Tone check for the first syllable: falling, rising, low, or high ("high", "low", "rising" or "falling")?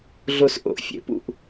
high